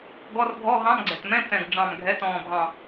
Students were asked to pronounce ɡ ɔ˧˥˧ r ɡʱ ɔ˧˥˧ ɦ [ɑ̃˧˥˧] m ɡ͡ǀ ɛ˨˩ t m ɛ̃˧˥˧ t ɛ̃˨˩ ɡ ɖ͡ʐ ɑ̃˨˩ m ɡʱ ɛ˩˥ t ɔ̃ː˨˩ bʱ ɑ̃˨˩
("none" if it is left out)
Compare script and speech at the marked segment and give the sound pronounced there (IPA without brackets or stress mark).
ɑ̃˧˥˧